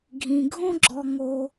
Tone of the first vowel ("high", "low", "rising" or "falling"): low